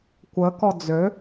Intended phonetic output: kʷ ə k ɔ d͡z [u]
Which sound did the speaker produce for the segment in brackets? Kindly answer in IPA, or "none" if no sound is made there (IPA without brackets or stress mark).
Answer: ø